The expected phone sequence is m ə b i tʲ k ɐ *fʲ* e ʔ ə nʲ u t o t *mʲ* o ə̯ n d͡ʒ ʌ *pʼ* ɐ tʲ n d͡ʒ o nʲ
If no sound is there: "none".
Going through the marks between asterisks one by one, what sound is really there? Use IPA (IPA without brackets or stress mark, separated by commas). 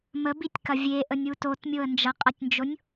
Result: vʲ, mʲ, qʼ